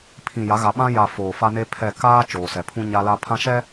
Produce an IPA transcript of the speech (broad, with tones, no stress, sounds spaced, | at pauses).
pʰ ĩ˨ j a˨˦ ɣ a˨ ɓ ã˦ j a˨ f oː˨ f a˦ n e˦ pʰ ɛ˦˨ k aː˦ t͡ʃ oː˨ s ɛ˨ pʰ ũ˦ ɲ a˦ l a˦ pʰ ã˦ ʃ ɛ˦